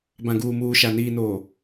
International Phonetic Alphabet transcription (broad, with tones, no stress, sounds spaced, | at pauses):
b ã˨ ɡ uː˨ m uː˨ ʃ a˨ n iː˨ n oː˨